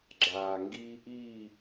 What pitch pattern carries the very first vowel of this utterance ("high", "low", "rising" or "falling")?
low